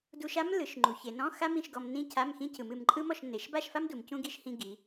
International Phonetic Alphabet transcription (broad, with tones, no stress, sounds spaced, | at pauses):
d u˧ ʃ a˥ m l ɯ˩˧ ʃ ŋ͡ǃ u˩˧ ç e˩˧ n ɔ̃˧˥˧ x a˥ m ĩ˧˥˧ ʃ ɡ ɔ˧ m n ĩ˥˧ cʰ a˧˥˧ m x ĩ˥ cʰ ɯ˩˧ m ɨ˩˧ m ǃʼ ɯ˥ m ɔ˥˧ ʃ n e˩˧ ʃ b a˥˧ ʃ f a˥ m d u˩˧ m c ũ˥ ɡ i˥ ʃ h ĩ˧ ɡ i˩˧